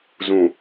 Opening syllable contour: low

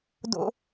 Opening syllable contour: high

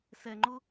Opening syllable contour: low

